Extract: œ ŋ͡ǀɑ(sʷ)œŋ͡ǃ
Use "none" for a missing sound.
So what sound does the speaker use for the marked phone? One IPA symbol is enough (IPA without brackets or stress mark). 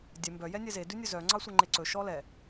sʷ